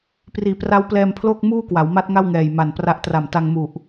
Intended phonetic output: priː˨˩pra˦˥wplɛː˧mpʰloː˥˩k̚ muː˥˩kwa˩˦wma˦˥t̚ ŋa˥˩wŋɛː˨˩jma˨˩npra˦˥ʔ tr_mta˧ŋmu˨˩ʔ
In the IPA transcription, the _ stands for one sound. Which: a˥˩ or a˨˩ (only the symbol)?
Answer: a˨˩